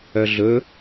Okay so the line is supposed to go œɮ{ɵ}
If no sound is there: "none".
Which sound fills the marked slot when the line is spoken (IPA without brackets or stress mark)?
ɵ